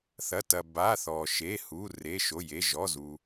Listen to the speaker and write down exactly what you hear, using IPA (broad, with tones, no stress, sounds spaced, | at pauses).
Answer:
θ ɐ˩˧˩ t ɐ˩ b a˩˧˩ θ ɔ˩ ʃ e˩˧˩ h u˩˧˩ r e˩˧˩ ʃ o˩˧˩ j e˩˧˩ ʒ ɔ˩˧˩ z u˩